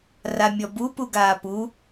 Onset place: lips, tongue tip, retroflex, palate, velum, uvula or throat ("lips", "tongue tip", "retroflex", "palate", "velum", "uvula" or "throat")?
tongue tip